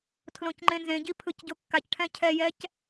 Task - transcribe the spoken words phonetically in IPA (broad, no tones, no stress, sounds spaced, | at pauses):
tʰ l õ c ŋ͡ǃ ẽ n z ẽ ɟ i pʰ ɯ c ɟ o kː a c ʈʰ ɛ̃ cʰ ɛ j ɛ c